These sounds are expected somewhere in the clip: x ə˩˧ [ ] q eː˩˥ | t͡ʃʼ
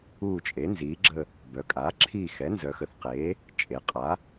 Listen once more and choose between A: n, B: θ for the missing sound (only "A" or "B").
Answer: B